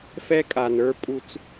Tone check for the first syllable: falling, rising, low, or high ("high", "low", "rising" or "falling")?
high